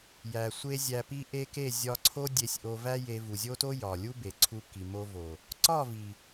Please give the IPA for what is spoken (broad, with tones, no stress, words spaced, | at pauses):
jæ˨ sʷe˦zʲæ˧pi˦ʔe˦ ke˦˨zʲɒ˧ǀʰo˦ dʲe˧sʲʔo˧væ˦ je˧vu˨ zʲo˦to˦ jɒ˨lʲu˦ be˨ǀʰu˧ ki˨mo˧vo˨ | ǀɒ˦˨vi˨